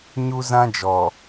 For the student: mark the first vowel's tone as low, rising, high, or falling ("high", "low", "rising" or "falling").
high